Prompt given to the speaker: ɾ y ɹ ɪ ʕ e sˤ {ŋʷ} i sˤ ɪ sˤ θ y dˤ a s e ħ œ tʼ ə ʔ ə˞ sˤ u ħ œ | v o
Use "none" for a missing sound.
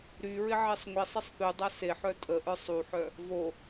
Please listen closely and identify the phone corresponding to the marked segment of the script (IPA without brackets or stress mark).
ŋʷ